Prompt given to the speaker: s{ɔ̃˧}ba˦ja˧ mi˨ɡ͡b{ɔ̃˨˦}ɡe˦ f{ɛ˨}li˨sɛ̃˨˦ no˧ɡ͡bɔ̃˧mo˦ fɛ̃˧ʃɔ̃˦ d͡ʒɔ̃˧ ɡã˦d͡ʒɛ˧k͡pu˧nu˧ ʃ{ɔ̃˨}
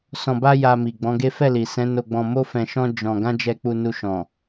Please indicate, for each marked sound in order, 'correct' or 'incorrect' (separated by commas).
correct, correct, incorrect, correct